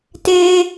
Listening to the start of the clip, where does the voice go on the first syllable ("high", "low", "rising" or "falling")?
high